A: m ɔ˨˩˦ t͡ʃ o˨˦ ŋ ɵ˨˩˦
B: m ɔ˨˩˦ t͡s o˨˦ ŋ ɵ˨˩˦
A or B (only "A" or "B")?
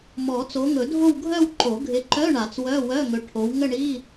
B